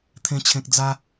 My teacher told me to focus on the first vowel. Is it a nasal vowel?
yes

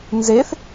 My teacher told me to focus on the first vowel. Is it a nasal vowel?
no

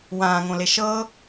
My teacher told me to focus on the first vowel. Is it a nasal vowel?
yes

